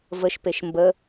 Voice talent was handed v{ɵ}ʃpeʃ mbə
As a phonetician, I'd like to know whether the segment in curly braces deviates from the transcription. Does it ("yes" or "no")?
yes